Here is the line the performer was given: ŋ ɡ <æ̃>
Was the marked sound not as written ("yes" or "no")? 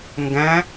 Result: no